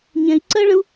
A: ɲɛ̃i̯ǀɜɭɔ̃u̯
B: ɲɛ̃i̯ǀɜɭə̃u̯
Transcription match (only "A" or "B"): B